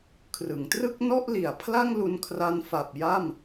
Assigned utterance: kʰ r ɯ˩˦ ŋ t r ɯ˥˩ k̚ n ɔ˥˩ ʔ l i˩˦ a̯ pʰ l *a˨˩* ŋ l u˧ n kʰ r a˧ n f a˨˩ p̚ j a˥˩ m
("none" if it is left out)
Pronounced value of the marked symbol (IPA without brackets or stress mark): a˥˩